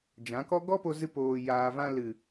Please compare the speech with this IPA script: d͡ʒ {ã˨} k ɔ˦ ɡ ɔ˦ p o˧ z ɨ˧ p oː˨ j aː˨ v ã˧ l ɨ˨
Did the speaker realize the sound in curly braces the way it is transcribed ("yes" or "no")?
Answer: no